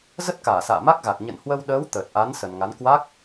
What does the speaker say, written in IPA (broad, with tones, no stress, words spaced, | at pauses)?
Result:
zə˦˥t̚kaː˧˩ sa̰ː˧˨ma˦˥k̚ɣa˨˩k̚ ɲə̰˧˨nhwə˧w ɗəː˨˦w t̪əː˨˩t̚ʔa˨˦n sə˨˩nŋa˨˦n kwa˦˥k̚